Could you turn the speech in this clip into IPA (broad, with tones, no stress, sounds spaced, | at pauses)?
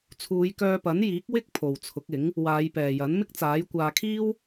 t͡sʰ uː˨˧ j k œː˧ p ɐ˨˥ n j iː˨˥ k̚ w ɪ˥ k̚ pʰ o˨ w t͡sʰ ʊ˨˥ k̚ ɪ˨˥ ŋ | w aː˨˧ j p ɛː˨ j ɐ˨˥ n m ɪ˥ k̚ t͡s aː˨˥ j kʷ aː˧ kʰ iː˥ w